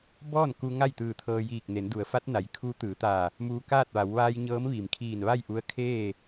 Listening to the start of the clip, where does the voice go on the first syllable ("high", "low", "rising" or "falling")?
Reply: falling